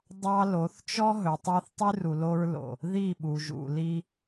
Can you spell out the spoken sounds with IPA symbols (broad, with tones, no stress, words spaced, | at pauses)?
dˤɑ˦ lo˨˦θt͡ʃɔ˦ ɦɵ˨tˤɑ˦θtˤy˦ru˨ lo˦ɹlo̰˨ | ði˦˨ ɓu˨ʒṵ˨li˦